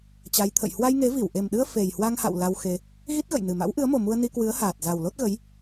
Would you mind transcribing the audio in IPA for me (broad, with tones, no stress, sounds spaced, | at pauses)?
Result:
t͡ɕ a˨˦ j t̪ʰ ə̰˧˨ j h w a˧ j ŋ e˨˦ v i˧˩ w ʔ e˨˩ m ɗ ɨ˧ ə̯ f e˨˩ j h w a˧ ŋ h a̰˧˨ w l a˧ w x e˧ | ɣ i˦˥ t̚ ɣ ə̰˧˨ j n ɨ˨˩ m a̰˧˥ w ʔ ɨ˨˦ ə̯ m o˨˩ m u˧ ə̯ n i˧ k w ɨ˨˦ ə̯ h aː˨˩ t̚ z a˨˩ w l o˦˥ t̚ ɣ ə˨˦ j